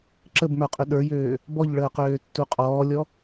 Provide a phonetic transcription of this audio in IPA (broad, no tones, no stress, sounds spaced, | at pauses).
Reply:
ǁ ə b m ə˞ qʼ ʏ ɗ ə˞ j øː | b ɔ ʎ ɭ əː q øː tː u qʼ ɔː lʲ ɔ